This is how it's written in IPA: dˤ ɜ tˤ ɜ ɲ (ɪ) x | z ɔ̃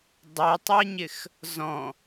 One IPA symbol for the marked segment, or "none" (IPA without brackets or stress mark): ɪ